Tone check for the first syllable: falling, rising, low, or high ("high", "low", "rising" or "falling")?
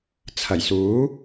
low